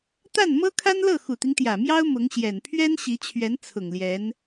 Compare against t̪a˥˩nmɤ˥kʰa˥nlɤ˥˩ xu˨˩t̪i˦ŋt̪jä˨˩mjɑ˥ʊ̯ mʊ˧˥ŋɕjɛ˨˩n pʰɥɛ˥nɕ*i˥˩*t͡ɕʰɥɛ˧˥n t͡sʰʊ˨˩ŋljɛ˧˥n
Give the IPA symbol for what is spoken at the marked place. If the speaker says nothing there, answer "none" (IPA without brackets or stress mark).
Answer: i˧˥